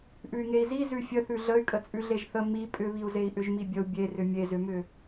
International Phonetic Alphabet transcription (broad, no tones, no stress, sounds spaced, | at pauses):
ʔ ʉ y̯ ŋ e i̯ z i z ʉ fʲ ə θ ʉ ɮ ə y̯ kʼ ə t͡sʼ ʉ ɮ e ʒ θ ə m i pʼ ʏ β i u̯ z e i̯ ʔ ʏ ʒ m i bʲ ə u̯ bʲ e r ʏ mʲ e z ʏ m ʏ